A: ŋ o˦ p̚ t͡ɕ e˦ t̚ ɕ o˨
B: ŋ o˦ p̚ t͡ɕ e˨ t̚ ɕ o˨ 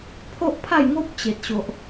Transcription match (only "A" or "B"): B